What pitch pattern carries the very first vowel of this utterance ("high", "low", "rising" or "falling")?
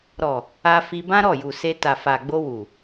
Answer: low